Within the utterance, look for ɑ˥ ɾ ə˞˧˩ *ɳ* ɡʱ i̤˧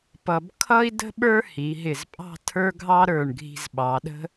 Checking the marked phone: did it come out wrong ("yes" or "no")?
no